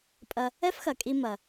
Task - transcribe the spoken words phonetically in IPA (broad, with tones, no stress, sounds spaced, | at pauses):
pʼ ɐ˧ | ɛ˥ f x ɐ˩ kʼ i˧ m ɐ˩